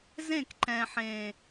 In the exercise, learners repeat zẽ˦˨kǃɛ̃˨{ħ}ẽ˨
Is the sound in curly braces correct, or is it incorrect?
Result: correct